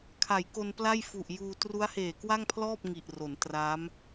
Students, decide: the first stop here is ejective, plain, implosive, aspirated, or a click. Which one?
aspirated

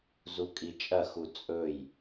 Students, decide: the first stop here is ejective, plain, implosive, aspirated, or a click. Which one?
ejective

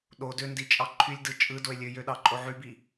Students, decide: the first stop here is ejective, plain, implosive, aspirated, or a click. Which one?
implosive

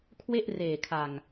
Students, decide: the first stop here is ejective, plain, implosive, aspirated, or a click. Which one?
aspirated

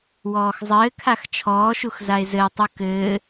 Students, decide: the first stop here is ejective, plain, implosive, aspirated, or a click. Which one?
aspirated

